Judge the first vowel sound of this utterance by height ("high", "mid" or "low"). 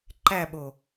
low